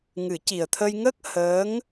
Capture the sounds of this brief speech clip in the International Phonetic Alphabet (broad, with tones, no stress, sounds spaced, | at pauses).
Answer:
ŋ ɨ˨˩˦ c i˨˩ ə̯ t̪ʰ ə˧ j ŋ ə˦˥ k̚ h əː˧˥ ŋ